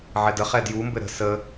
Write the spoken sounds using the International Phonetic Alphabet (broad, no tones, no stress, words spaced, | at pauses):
ʕɛdəχɛ djumbɘ ɾə̤ sə